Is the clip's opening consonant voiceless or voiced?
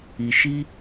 voiceless